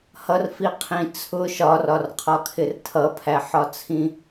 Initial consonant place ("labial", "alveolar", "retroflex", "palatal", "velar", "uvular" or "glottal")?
glottal